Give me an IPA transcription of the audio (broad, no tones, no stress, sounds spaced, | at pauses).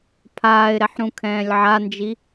pʰ aː ɪ̯ ɾ ɛ ħ ɾ ũ kʰ ɛ̃ː lʲ ʕ a n d͡ʒ i